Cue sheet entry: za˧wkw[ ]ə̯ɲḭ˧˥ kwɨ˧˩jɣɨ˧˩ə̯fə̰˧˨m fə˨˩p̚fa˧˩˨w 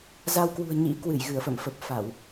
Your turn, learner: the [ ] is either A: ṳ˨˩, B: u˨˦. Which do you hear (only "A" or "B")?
A